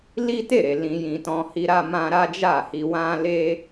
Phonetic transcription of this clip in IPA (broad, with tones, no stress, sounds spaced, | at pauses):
l i˦ t e˦˨ ɾ e˨ l ĩ˧ j ĩ˧ t ɔ̃˧ h i˦ ɾ a˦ m ã˦ ɾ a˦ d͡ʒ a˦˨ h i˧ w ã˦ l e˦